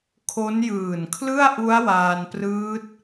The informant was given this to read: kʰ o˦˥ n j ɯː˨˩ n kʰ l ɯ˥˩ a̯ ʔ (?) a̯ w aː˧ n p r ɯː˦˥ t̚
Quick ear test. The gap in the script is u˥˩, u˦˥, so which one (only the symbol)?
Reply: u˦˥